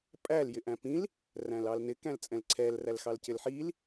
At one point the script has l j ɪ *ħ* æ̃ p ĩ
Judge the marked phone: incorrect: ʔ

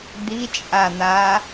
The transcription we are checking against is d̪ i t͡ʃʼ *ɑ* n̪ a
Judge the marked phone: incorrect: a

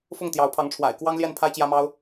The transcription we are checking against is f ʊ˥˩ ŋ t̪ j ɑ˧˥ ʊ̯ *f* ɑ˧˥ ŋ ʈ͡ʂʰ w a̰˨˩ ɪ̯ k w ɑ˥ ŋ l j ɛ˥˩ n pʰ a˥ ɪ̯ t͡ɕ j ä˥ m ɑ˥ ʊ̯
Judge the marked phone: incorrect: pʰ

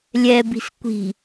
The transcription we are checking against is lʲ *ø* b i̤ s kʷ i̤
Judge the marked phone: incorrect: ɛ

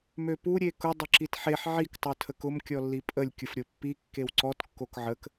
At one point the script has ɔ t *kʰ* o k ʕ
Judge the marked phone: incorrect: kː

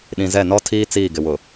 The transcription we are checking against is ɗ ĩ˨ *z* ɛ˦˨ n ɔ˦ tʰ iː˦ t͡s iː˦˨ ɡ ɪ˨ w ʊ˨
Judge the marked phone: correct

